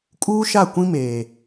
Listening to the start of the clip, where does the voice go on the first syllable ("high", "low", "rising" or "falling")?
high